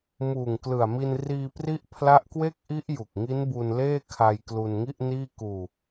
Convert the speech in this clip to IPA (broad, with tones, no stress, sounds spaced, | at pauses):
m uː˨˩ ŋ k l ɯ˨˩ a̯ m i˧ n r iː˧ p r i˦˥ ʔ pʰ l a˦˥ ʔ k w e˥˩ k̚ ʔ i˦˥ ʔ j u˨˩ k̚ ŋ i˦˥ n b u˧ n l eː˥˩ kʰ a˧ j k l u˧ n ŋ i˥˩ ʔ n iː˥˩ k uː˧